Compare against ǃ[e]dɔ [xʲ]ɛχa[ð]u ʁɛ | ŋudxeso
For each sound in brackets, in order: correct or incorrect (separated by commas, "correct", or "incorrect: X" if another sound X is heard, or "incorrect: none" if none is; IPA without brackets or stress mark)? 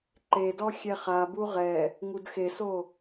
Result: correct, correct, incorrect: b